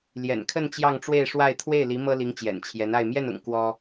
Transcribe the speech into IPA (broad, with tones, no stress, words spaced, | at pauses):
ljɛ̰˨˩nkʰə˥˧n t͡ɕjɑ˥˧ŋʈ͡ʂwe˥˧ɪ̯ʂwa˥˧ɪ̯ t̪ʰwe˥˩ɪ̯li˧˥ mɤ˥li˧˥ŋ t͡ɕjɛ̰˨˩nt͡ɕʰjɛ˧˥na˥˧ɪ̯ mjɛ˥˩nʊ̰˨˩ŋ kwɔ˥